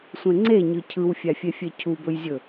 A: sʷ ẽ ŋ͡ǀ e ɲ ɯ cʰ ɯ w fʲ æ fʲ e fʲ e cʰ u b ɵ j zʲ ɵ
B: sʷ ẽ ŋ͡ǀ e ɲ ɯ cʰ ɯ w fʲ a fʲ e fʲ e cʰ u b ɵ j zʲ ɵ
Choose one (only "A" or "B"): A